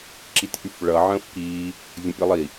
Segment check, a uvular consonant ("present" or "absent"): absent